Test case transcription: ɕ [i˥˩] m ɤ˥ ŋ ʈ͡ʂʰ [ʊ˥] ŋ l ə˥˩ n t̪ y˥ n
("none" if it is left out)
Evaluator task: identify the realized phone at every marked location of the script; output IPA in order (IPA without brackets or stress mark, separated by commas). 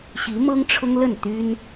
i˧˥, ʊ˥